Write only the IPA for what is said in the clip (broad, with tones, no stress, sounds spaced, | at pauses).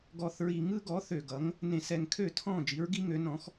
ɡ ɔ˨˩ θ ɹ i˨˩ ŋ ɯ˦ ɡ ɔ˩˥ θ ø˨˩ ɡ ʌ˩˥ ŋ | n ẽ˧˩˧ s ɛ˨˩ ŋ kʰ ø˥˩ tʰ ɔ̃˥˩ d͡ʒ i˩˥ ɹ ɡ i˦ ŋ ø˩˥ n ɔ̃˩˥ x